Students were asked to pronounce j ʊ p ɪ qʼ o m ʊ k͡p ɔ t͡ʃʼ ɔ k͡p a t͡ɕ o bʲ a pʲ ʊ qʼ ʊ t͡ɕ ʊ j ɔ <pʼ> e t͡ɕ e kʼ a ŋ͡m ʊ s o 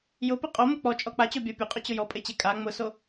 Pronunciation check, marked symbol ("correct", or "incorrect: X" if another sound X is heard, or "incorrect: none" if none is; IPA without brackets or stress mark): correct